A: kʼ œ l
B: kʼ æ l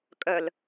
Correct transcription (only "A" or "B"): A